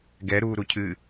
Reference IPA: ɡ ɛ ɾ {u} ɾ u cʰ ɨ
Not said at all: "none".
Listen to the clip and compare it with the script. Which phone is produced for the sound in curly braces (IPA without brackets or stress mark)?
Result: u